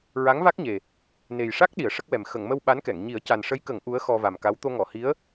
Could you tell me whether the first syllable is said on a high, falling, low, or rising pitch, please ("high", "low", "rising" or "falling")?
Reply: rising